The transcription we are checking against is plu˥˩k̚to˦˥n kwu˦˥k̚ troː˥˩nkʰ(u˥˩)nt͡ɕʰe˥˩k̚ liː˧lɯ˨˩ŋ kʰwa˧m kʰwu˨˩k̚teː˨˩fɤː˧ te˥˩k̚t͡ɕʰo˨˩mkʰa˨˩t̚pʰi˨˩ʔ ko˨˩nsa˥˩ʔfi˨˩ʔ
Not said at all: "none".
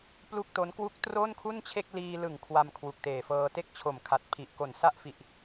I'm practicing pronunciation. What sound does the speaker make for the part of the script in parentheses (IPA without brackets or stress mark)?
u˥˩